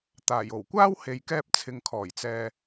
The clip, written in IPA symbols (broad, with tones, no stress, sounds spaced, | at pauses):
t̪ aː˨˩ j o˨˩ w kʷ aː˥ w h e˨ j k ɛː˧ p̚ t͡sʰ ɪ˨ ŋ kʰ ɔː˨˩ j t͡s ɛː˨